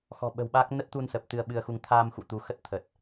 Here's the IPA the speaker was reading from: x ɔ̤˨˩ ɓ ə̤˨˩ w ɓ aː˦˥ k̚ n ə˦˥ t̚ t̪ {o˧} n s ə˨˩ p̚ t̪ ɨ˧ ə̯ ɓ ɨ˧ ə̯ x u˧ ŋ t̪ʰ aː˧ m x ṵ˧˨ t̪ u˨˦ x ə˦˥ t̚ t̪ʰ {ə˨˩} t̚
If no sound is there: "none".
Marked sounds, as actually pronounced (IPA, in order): u˧, ə˨˩

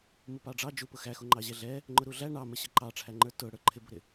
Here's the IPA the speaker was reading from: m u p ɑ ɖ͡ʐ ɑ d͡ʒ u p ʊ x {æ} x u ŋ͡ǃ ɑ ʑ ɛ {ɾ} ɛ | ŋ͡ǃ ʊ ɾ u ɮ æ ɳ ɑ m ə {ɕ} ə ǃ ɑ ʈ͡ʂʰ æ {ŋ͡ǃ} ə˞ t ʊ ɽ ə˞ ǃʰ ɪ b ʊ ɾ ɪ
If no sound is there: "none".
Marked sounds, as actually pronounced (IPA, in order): æ, ɮ, ɕ, ŋ͡ǃ

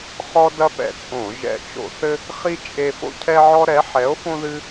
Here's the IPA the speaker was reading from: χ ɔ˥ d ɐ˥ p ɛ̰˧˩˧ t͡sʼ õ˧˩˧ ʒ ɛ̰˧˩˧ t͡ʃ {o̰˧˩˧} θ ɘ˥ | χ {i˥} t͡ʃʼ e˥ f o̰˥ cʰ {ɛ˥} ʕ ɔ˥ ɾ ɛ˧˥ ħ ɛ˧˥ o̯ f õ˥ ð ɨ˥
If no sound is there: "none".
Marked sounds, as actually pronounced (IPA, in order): o̰˧˩˧, i˥, ɛ˥

